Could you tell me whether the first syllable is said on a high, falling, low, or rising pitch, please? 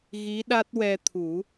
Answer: rising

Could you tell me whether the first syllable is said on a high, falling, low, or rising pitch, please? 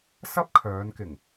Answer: high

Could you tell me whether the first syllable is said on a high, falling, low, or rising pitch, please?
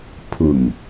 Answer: low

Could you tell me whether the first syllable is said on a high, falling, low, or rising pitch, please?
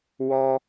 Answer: high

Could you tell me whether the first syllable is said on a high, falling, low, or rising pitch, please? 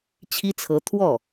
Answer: high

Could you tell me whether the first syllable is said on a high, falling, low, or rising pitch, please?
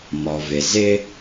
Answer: low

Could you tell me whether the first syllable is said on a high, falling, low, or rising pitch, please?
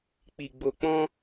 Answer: low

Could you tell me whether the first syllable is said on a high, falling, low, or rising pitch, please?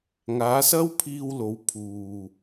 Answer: rising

